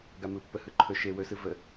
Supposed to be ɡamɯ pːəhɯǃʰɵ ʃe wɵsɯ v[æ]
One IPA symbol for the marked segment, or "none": ə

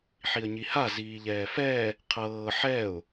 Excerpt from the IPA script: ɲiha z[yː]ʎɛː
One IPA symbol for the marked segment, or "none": iː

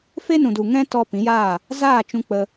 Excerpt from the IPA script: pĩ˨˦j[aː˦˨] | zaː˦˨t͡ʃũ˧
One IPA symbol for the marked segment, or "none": aː˦˨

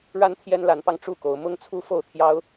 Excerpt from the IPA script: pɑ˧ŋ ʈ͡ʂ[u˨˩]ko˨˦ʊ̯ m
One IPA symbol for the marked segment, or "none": u˥˨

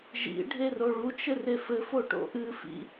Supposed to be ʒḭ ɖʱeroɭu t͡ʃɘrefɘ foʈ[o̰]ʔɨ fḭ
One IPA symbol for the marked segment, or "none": o̰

